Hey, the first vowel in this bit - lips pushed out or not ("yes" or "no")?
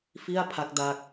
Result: no